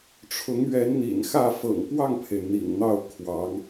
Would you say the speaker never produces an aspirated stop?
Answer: no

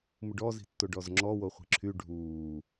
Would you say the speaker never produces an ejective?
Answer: yes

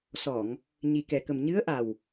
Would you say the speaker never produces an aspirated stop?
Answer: yes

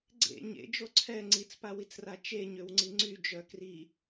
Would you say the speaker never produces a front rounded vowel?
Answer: no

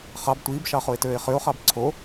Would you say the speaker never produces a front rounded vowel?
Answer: no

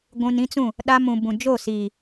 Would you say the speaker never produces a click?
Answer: yes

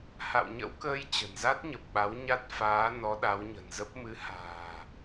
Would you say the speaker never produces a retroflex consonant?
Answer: yes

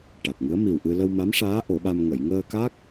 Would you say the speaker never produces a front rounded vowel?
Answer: yes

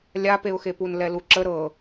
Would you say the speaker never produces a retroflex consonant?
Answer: yes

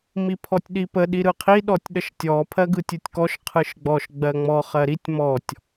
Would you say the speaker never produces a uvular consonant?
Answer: no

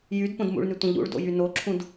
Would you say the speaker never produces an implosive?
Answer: yes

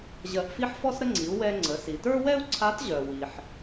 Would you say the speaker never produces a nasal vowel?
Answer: yes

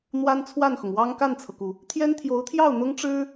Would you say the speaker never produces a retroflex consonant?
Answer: no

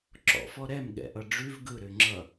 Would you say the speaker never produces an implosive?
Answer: no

